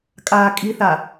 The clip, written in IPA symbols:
kʼaːkʼiθa

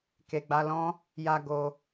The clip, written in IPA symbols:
ke˨ɡ͡ba˧lɔ̃˦ | ja˧ ɡo˧

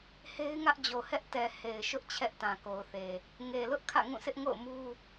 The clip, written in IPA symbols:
he˦ɪ̯ŋä˦ʔd͡ʑo˨hɛ˦ʔ tɛ˨ he˨ɪ̯ʃʊ˦ʔ t͡ɕʰɛ˦ʔtã˨ko˨ʊ̯θe˨ | ŋe˨ lʊ˦ʔ kʰä̰˦˨ŋũ˦˨sɪ˦ʔŋo̰˦˨ʊ̯ mu˦

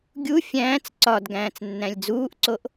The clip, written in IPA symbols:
ɡʲu fʲæ̃ːt͡s ǀɒd ɡæ̃ːt͡snːæ̃lʲd͡zuːʔǀoʔ

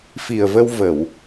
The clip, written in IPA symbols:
fi˨˩ə̯və˧w və˧˩˨w

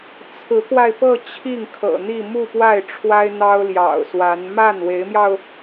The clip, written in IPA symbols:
t͡sʰɹ̩˧˥kwa˧ɪ̯pɤ˥˧ t͡ɕʰi˥˩ŋkʰɤ̰˨˩n̪i˥˧ mu˥˧pwa˥˩ɪ̯ ʈ͡ʂʰwa˥ɪ̯n̪ɑ˥ʊ̯ ljɑ̰˨˩ʊ̯swa˧˥n ma˥˩nwe˧˥ɪ̯mjɑ˧ʊ̯

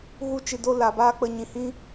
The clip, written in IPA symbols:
ɣu˧t͡ʃɨ˨do˧ la˨baː˦k͡pə˧ ɲĩ˨hĩ˦

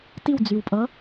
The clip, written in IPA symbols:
tiwd͡zywpʼʌ

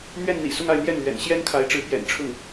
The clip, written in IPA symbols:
n̪ɥɛ˥˩nn̪ḭ˨˩ sʊ˥˧ŋa˥˧ɪ̯n̪jɛ˥˩nlɥɛ̰˨˩n ɕjɛ˥nkʰa˧˥ɪ̯ʈ͡ʂɻ̩˧˥ pjɛ̰˨˩nʈ͡ʂʰʊ˥˩ŋ

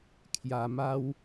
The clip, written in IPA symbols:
kʰja˧ma˦w

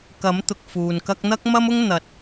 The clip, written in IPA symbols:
kɐ˨˥mt̪ʊ˨k̚ fuː˨nkɐ˥k̚ n̪ɐ˥k̚mɐ˥mʊ˥ŋ n̪ɐ˨t̚

